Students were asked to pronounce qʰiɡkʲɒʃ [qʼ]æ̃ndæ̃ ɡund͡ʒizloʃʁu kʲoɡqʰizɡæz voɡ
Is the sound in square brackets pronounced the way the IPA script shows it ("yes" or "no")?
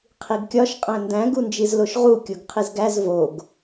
yes